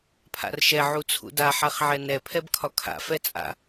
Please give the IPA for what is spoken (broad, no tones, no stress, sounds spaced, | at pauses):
pʰ a̰ r ʃ ɛ ʕ u t͡sʰ ṵ d a ħ a χ ʕ ɛ n ɛ pʰ ɛ b kʰ ɒ kʰ a̰ f ɛ t͡sʼ a̰